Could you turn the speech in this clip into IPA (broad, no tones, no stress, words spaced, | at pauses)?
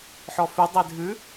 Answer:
ħɔfʉ dˤedʱʉ